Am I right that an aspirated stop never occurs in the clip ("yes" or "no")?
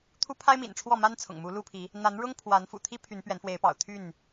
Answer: no